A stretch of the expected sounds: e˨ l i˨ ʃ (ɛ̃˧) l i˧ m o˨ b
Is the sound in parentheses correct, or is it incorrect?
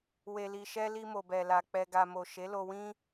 incorrect